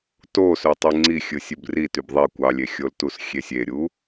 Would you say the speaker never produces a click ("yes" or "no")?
no